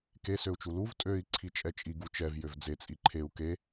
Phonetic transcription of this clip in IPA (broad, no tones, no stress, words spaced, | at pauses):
ke søu̯t͡ʃuluv tʼøi̯ ǀʰit͡ʃʼɛt͡ʃʼi ɡut͡ʃɛv jøvd͡ze t͡sʼiǃʰeu̯ ke